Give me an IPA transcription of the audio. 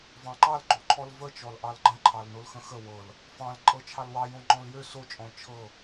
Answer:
vɑ̃ǃɑl ɡ͡ǃoǃʰɔlvət͡ʃɔl ʔɑlɡ͡ǃə̃ǃʰɑl nolxə̃xə wɤl | fɑ̃l ǃʼɤt͡ʃʰɑlwɑjõ ŋ͡ǃɔ̃ljø sot͡ʃʼɔ̃l t͡ʃʰɤ

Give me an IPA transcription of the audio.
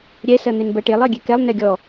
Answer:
ɾʲɛ sɜn̪enbɜʈelˠ ɜɡʲekɛlˠ nɛɡʲɔ

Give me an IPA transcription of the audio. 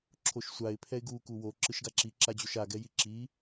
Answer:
ǁʰoʃsʷaɪ̯ pʰɛɪ̯ɡu kuwo ǁɯʃɡaǁi ǁad͡ʑoʃa ɡɛjiǁi

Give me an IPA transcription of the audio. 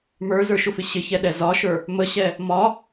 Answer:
mə˞zə˞ʃʊfɪ ɕɪçɛɗɛ zɒʃə˞ | məɕɛ | mɒ

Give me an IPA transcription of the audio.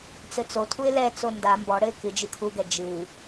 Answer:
t͡sɘt͡sotʰuɪ̯ lɛt͡so nda mbɔɽɘɪ̯ kɨ d͡ʒɨkʰuɡɛ d͡ʒɨ

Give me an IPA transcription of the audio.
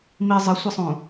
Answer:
mi zˤəsʷəsˤũ

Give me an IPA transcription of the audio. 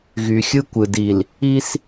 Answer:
ɣy˨xʲɯ˦kʷɯ˨di˨l | i˦s

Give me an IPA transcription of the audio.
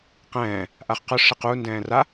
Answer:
qɛ̃ː | ʔaχqʊ ʂiqundɛ̃ː ra

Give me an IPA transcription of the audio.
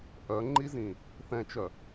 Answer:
ʔœŋ͡ǃizĩ | θɛ̃t͡ʃœ

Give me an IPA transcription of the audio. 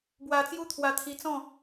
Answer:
bwa˧t͡sju˦t̪ʰwa˧ t̪ʰi˧t͡sɔ̃˥˧

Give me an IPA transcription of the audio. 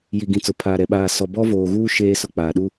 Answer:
ji˨ɡĩ˨t͡sʊ˨ pʰaː˨ɾɛ˨ ɓaː˨ sɔ˨bɔ˦voː˨ɣuː˦ ʃeː˦sʊ˦k͡paː˨ ɗu˦

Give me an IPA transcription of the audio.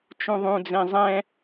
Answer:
t͡ʃũðˤũd͡zẽ zˤɛ̃

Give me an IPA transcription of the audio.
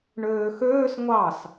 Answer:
ɳøːxøːs ŋʷɑs

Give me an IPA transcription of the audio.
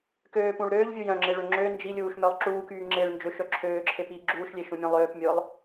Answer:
køːpũɭ ɾøːʎvʲu jœ̃ŋ͡ǁeɭø ŋ͡ǁø nd͡ʒilʲuːʃmœlˠ ǁuːkyː ŋ͡ǁeɭ nd͡ʒøʃœ ǁʰøːǁʰepiː ɡ͡ǁuːʃlʲeʃũmʲœ̃ lˠøːpmʲʊːlˠ

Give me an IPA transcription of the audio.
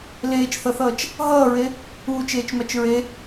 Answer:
leːt͡ʃθʌθʌːt͡ʃ | ɦʌːɹe | uːt͡ʃeːt͡ʃmat͡ʃ ɹe

